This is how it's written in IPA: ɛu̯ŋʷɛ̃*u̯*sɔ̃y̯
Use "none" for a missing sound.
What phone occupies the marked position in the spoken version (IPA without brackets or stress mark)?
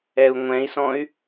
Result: i̯